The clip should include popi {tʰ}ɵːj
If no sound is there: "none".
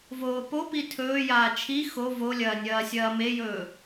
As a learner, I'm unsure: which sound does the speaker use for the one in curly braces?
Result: tʰ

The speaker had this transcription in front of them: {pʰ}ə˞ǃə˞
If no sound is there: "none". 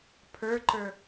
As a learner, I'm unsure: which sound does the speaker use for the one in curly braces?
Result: pʰ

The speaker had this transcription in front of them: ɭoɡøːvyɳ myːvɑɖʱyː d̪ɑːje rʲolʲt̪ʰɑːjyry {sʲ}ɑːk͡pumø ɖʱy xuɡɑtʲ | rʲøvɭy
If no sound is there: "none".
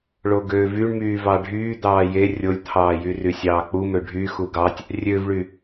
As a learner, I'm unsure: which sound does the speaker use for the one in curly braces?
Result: sʲ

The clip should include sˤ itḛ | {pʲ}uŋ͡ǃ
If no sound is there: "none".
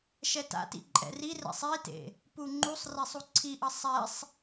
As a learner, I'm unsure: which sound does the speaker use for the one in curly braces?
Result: p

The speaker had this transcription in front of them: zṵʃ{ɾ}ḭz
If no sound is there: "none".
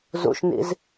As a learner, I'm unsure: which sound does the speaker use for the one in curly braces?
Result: n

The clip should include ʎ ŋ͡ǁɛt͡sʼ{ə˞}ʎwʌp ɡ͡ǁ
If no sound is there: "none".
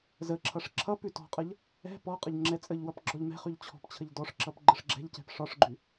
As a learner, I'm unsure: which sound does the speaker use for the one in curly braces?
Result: ə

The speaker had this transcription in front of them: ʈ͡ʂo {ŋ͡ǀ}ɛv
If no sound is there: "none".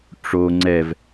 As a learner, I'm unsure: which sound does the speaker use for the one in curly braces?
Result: ŋ͡ǀ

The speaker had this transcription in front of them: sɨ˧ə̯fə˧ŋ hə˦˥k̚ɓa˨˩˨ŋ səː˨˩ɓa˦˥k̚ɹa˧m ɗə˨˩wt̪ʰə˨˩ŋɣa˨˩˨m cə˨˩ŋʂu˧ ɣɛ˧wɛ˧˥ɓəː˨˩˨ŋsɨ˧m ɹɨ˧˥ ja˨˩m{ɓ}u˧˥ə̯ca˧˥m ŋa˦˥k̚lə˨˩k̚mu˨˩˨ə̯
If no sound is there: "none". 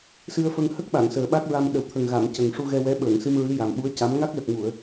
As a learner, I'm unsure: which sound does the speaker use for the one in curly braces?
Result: ɓ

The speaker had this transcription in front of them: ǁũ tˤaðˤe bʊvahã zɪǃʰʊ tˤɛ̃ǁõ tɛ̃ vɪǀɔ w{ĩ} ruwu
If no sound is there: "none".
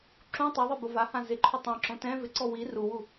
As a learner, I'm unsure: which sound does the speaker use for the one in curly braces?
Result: i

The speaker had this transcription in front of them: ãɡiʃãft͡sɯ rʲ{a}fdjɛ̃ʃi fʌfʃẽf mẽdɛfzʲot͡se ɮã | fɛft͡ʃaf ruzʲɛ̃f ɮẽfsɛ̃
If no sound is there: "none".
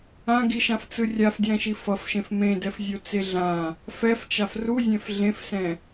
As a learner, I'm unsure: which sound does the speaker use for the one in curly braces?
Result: a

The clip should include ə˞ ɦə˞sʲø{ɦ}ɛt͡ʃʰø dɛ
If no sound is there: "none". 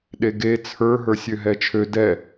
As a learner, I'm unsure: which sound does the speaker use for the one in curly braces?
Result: ɦ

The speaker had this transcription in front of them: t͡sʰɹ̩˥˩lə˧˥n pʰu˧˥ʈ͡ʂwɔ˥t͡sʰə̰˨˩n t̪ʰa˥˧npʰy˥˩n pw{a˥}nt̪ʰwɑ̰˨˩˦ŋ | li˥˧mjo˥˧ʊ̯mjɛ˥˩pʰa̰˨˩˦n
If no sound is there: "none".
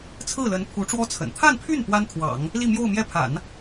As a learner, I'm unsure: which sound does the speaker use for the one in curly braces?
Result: a˥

